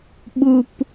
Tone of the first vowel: low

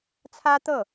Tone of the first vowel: high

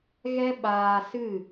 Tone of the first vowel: high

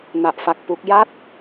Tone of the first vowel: low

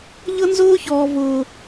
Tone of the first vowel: high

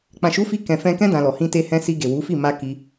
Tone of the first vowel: low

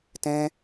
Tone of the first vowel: high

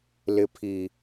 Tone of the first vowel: low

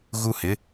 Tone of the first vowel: high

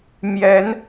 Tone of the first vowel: rising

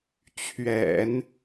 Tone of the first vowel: low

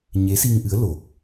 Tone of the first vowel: rising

